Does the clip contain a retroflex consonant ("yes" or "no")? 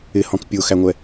no